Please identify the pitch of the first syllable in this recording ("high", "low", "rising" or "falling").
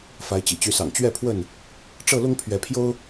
rising